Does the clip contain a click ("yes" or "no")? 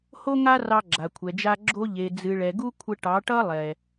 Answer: yes